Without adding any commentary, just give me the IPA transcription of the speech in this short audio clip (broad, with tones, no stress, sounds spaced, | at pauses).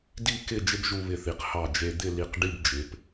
d i˥˧ k ɪ˥˧ d͡ʒ ɪ˥ b ʒ u˧ β ɪ˧˩ θ i˩˧ q h ɑ˧˩ d͡ʒ e˧ d̪ ɪ˥˧ l i˧˩ q ɖ i˥˧ b d͡ʒ ɪ˩˧ p